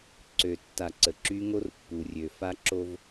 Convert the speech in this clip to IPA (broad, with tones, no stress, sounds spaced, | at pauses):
ǀ ø˨ tː a˨ ǀ ə˨ ǁ y˦ ŋ o˦ r pː u˨ rʲ ø˨ f a˦ ǁ o˦ v